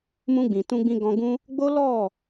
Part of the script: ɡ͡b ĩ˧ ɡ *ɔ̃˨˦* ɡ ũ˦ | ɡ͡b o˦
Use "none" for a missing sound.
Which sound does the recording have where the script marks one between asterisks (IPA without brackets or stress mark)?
ɔ̃˧